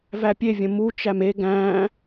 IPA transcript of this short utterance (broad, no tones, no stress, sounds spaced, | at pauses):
v æ pʲ e vʲ ə̃ m u t͡ʃ æ m e ɡ æ̃ː